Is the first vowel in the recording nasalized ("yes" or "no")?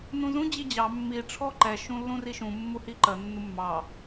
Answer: yes